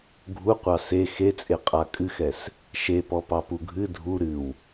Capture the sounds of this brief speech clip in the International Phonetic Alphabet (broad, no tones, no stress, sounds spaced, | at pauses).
ɡʱ u qʷ ɑ s e x e t͡sʼ e qʼ a kʼ ɨ x ɛ s | ʃ e p ɔ p ɑ p u ɡʱ ɨ dʱ u ɾ ɨ w